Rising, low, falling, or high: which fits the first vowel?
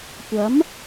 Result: rising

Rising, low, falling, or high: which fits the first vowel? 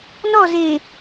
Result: falling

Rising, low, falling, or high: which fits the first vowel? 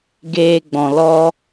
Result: high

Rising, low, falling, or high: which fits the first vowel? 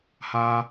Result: low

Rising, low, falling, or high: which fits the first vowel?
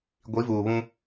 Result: rising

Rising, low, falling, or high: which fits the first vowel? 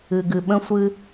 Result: low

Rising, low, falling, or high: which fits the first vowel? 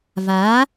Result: rising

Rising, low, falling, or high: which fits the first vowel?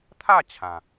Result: falling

